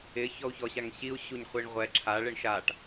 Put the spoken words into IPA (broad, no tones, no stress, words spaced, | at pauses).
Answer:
ɪ çɔu̯çɔɕaŋɕiu̯ ɕuɲχʷiɳʁʷɛ ǁʰaɭeɳ ʃaʈ